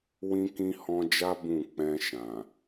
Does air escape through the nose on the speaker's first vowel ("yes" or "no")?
yes